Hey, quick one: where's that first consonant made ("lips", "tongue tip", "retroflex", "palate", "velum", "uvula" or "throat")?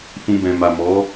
lips